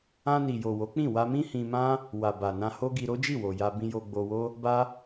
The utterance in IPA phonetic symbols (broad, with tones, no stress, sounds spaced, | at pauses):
ã˧ n i˨ j o˨ w o˨˦ k͡p ĩ˦˨ w a˧ m ĩ˦ h ĩ˧ m ã˦ | w a˨ b a˨ n ã˧ h o˦ ɡ i˧ ɾ o˦ d͡ʒ i˦˨ w o˨ j a˧ b ĩ˧ j o˧ ɡ͡b o˧ w o˦ | b a˦